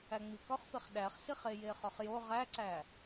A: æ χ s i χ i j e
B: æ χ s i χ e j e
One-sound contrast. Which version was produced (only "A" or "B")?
B